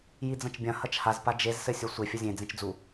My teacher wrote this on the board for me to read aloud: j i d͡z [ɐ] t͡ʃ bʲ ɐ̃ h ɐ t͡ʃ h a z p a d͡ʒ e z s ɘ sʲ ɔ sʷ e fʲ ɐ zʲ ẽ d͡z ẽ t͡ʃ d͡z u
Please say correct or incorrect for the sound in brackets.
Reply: incorrect